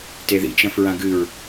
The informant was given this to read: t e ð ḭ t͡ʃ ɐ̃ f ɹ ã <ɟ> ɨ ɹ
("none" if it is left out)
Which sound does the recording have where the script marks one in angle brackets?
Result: ɡ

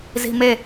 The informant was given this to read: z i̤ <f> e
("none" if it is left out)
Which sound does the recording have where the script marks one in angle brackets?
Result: m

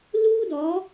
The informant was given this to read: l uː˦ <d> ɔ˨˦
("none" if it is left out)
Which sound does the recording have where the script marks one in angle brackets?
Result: d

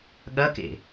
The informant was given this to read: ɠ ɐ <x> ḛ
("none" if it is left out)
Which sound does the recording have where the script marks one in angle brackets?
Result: k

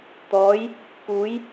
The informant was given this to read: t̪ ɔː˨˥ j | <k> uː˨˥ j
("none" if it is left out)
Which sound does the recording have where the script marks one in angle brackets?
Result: k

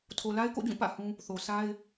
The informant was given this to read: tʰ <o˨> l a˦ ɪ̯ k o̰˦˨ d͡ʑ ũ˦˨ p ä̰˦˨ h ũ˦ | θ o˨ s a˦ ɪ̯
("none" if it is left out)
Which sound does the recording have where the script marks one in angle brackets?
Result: o˨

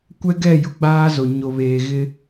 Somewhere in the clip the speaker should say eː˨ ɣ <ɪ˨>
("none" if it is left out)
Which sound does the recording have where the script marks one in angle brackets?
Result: ɪ˦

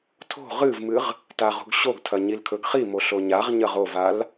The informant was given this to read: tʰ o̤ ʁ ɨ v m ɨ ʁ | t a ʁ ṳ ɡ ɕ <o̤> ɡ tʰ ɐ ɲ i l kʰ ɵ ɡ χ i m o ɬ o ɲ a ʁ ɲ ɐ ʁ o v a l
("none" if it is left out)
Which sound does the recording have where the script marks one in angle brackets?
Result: o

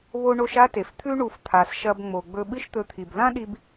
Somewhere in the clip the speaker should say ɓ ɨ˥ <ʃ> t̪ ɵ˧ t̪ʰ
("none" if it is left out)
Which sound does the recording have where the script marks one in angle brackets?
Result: ʃ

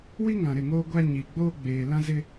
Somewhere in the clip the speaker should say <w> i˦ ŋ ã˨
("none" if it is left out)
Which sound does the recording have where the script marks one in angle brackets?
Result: w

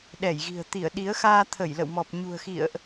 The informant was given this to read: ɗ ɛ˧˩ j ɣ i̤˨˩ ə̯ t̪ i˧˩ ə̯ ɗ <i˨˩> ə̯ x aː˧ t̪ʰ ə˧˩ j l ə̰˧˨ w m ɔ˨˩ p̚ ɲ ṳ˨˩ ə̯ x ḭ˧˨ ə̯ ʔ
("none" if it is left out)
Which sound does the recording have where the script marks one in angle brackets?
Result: i˨˦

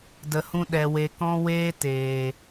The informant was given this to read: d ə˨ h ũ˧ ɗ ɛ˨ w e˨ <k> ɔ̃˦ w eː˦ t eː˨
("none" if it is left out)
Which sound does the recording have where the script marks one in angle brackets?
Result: k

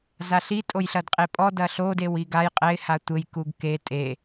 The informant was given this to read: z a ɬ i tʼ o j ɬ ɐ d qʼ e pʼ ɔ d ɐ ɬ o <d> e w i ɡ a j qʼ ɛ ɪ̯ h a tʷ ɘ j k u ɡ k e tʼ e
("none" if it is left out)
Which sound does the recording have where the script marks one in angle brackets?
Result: d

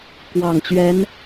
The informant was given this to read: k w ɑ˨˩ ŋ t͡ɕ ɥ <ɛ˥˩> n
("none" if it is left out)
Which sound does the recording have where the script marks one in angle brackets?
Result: ɛ˧˥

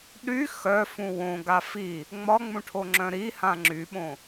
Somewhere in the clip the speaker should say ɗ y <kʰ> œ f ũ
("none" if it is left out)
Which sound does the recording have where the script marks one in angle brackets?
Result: x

